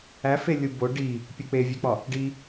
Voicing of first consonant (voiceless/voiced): voiceless